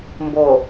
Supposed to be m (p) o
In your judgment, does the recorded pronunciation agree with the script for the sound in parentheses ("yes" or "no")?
no